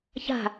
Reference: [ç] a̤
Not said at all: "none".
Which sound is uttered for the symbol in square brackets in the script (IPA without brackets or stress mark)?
ç